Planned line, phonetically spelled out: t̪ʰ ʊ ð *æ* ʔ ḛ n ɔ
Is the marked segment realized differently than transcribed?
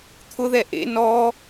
yes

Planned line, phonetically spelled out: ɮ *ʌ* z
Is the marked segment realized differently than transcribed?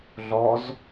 yes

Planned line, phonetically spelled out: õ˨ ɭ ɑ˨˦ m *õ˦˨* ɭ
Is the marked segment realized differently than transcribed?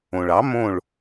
no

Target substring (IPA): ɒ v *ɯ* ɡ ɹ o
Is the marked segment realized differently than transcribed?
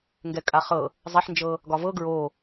yes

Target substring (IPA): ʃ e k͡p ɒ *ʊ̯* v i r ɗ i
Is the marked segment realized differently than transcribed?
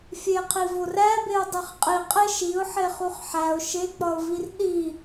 no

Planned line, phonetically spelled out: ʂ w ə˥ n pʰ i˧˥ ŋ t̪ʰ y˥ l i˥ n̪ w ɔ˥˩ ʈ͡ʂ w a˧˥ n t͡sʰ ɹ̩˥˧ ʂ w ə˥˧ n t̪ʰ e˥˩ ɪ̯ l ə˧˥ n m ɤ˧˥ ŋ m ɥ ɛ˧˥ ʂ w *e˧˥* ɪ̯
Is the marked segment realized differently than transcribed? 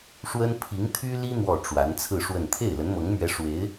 no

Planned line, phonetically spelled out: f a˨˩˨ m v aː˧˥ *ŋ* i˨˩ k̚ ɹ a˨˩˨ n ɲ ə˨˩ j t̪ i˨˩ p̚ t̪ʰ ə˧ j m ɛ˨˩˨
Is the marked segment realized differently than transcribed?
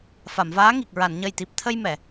no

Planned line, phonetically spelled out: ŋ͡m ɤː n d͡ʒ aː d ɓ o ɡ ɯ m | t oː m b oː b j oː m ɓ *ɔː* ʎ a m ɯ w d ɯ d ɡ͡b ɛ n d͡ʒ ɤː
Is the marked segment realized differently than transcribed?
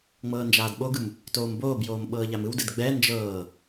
yes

